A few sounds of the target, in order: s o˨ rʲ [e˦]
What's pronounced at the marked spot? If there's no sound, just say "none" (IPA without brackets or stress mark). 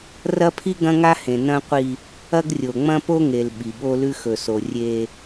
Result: e˦